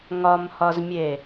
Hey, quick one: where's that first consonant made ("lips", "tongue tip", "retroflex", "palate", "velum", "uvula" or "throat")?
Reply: velum